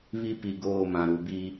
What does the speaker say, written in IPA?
β i˦ p i˨ ɡ oː˦˨ m ã˨ ɾ u˨ b i˦

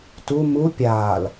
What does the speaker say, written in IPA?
t u m u pʲ aː l

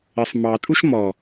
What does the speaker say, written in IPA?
ɪ sˤ m ɑ tʼ u ʃ m ɔ

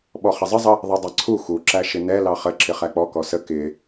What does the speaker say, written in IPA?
ɓ ɔ χ ɪ zˤ ə zˤ ə | ðˤ ɛ dˤ ɑ ǀʰ u x u ǁ æ ʃ ɪ n ɛ l ɑ χ ə ǁ ɪ χ æ k͡p ɔ k ɔ s ə k ɪ

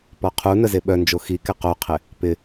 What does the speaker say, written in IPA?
p ɔ qʰ u n ə z e ɓ œ n d͡ʒ o x i k ɪ q o qʰ ɪ | p ɪ

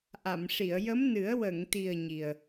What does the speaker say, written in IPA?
ʔ a˨˩˨ m ʂ i˨˩˨ ə̯ j ə˧˥ m n ɨ˨˩˦ ə̯ w ə˨˩˨ ŋ t̪ i˨˩ ə̯ ɲ i˨˩ ə̯

